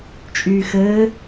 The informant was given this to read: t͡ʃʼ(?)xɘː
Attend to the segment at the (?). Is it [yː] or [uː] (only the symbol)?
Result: yː